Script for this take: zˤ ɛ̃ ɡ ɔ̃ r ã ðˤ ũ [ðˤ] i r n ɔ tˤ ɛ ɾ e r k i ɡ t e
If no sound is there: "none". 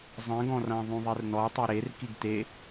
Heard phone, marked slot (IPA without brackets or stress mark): ðˤ